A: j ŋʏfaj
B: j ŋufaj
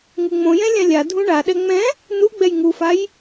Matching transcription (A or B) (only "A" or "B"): B